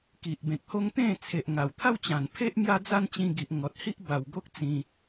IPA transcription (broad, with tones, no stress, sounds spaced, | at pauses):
k i˨ ʔ b ẽ˨ k̚ h o˦ ŋ t̪ ẽ˥˧ t͡sʰ e˨ ʔ ŋ a˨˩ w t̪ʰ a˥˧ w t͡ɕ ã˨˩ n pʰ e˦ ʔ m j a˦ d͡z a˦ n t͡ɕ ĩ˧ ɡ i˨ ʔ ŋ ɔ˨ t̚ h i˦ ʔ b a˨˩ w ɡ o˦ k̚ t͡s ĩ˧